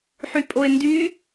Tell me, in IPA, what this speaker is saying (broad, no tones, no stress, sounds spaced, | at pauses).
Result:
ħ y pʼ o ɪ̯ n d y